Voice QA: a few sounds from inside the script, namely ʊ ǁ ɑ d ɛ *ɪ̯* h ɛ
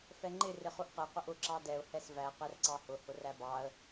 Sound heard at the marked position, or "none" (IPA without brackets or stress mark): ʊ̯